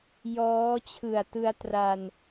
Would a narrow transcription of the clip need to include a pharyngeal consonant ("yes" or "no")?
no